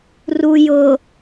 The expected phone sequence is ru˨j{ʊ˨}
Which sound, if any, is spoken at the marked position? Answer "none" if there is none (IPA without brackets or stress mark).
ʊ˨